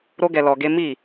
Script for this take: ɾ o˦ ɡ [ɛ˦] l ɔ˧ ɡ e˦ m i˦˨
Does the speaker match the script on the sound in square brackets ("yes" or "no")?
no